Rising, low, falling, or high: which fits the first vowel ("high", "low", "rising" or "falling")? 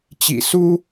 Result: low